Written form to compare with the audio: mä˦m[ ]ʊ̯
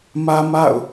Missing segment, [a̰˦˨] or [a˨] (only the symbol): a̰˦˨